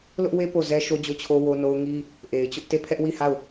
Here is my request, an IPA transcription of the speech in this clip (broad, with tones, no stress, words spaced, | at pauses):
lʊ˦ʔwe˦ po˦˨zɛ˦ʃo˦ d͡ʑo˦˨t͡ɕʰo˦ wo˦no˦ʊ̯ ŋi˦ | ʔe˨ɪ̯t͡ɕʊ˦ʔte˦˨ pʰɛ˦ʔwi˦˨ha˦˨ʊ̯